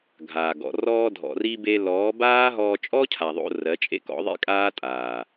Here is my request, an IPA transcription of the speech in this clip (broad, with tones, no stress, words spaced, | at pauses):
ɡʱaː˨ɡɔ̰˨ rɔː˧dʱɔ̰˨ri˧be˧ lɔː˨˦baː˦ɦɔː˧ t͡ʃʼɔ˦cʰa˨ ðˤo̰˧ rɜ˨˦t͡ʃʼḛ˦kɔ̰˨˦ðˤḭ˦ kʼaː˦tʼaː˨